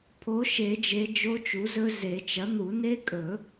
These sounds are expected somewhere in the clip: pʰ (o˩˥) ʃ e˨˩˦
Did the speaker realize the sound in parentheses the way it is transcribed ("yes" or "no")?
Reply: yes